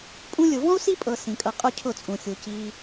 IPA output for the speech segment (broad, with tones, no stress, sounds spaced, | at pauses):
pʼ ũ˧ lʲ ʊ˨ v ɔ̃˦ u̯ s i˦ pʼ ɤ˧ s ĩ˨ kʼ ɤ˧ qʼ ʊ˦ cʰ ʊ˦˨ t͡sʼ ũ˨ xʲ u˨ c i˧